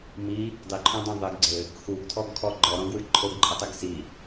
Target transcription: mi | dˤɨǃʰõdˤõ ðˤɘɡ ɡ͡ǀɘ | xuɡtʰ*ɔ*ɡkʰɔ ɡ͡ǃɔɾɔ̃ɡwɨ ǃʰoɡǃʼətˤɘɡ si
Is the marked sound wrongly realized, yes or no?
no